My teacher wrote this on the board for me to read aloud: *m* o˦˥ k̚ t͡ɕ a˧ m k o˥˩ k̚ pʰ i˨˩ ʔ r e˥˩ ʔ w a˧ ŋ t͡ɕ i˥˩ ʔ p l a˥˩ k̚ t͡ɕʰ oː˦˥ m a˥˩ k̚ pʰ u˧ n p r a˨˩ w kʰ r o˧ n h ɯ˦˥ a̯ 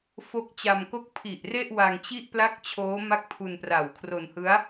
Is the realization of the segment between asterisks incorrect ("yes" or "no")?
yes